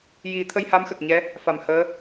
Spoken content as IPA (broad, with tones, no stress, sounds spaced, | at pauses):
j i˨˩˦ t̪ʰ ə˧ j h a˧˥ m x ə˨˩ k̚ ɲ ɛ˧˥ | f a˨˩˨ m h əː˧˥